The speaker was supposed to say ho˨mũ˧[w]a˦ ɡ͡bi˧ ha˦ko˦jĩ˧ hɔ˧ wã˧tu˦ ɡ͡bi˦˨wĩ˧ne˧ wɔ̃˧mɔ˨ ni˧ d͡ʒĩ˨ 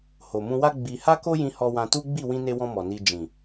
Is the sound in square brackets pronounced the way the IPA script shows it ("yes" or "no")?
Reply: yes